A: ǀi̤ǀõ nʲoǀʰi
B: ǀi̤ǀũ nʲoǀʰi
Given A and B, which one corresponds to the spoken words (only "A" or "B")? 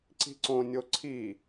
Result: A